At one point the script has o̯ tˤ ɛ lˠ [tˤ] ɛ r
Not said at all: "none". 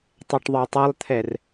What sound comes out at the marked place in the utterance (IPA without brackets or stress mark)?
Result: t̪ʰ